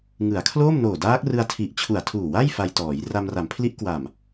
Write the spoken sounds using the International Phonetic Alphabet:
ŋ ɯ˩˦ a̯ kʰ l oː˥˩ m n oː˨˩ d aː˦˥ k̚ r ɯ˧ a̯ tʰ i˨˩ ʔ t͡ɕʰ u˨˩ a̯ tʰ uː˨˩ w a˥˩ j f a˧ j t ɔː˩˦ j r a˧ m r a˩˦ m pʰ l i˦˥ ʔ k w a˨˩ m

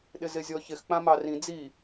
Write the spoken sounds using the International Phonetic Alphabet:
ɗ ɪ z ɪ zʲ ɔ ç ɪ x k͡p ã m ɑ r ĩ d͡z i

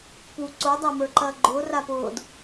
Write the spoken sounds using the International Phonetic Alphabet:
p u ǀ o dˤ æ m ə˞ ǃ ɐː ɡ͡ǃ ʊː r a p ʊː d

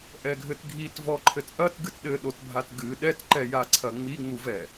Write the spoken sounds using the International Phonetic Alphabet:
ʔ ɛ ɡʱ ɘ t ɡʱ i t v ɔ ǃʰ ɘ t ʔ ɐ t ɡ ɨ t ɗ ɘ ɗ o t bʱ a t ɡ ɨ ɗ ɛ t ǃ ɛ j a ǀʰ ɐ ŋ͡m i ŋ͡m u v ɛ

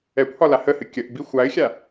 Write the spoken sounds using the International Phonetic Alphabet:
ɛ kʷ h ɒ l a h ə h ɨ kʲ ə ʔ b i xʷ a ɪ̯ xʲ a

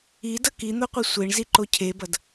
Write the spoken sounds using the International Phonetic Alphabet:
i d ʌ k i n̪ o qʷ i sʷ e ɳ z i ǃ o cʰ e b ʌ d

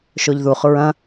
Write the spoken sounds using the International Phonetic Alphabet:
ʃ o ʎ ð u χ ɹ ɐ̃

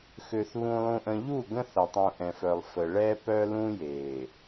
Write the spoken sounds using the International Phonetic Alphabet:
x ø˨ θ β ũ˨ lˠ ũ˨ ʔ ə̃˨ ʎ u˦˨ ɡ ə̃˦ θ ɐ˨ tˤ ũ˨ ʔ ɛ̃˨ f œ˨ lˠ f ə˨ ɭ ɛ˦ p œ˦ l ũ˦ j e˨

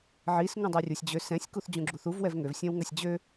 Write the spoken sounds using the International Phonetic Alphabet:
ʕ i s ŋ ũ dˤ ɜ rʲ u sʲ d͡ʑ ø s ɛ̃ sʲ k u θ d͡ʑ ũ ɡ͡ǁ u θ u v w ɛ v ŋ ø v sʲ ɛ̃ w ŋ ɜ sʲ d͡ʑ ø

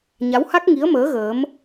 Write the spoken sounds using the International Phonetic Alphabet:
ɲ a˨˦ w h a˦˥ k̚ ŋ i˨˦ ə̯ m əː˨˦ ɣ əː˨˦ m

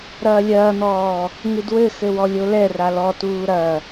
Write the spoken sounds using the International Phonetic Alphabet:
ɾ ɐː lʲ ɐː n̪ ɔː | ŋ ɨ d w ɘ x ɘ w ɔ lʲ o l ɛ r a l ɔ t uː ɾ ɐ

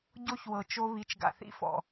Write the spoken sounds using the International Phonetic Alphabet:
ɟ o˦ ç w ɤ˨ t͡ʃ o˦ β i˨˦ t͡ʃ ɡ a̰˨ θ ḭ˦ f ɔ̰˨

